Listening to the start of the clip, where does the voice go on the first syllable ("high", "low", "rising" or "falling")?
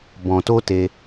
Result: low